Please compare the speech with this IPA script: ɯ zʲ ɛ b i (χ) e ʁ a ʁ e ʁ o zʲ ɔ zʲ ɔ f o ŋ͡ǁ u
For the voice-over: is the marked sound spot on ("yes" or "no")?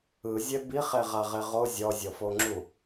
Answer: yes